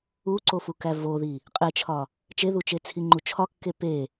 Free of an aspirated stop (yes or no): no